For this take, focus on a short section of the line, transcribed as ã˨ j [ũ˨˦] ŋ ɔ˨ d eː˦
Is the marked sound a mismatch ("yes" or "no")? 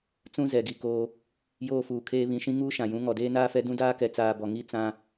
no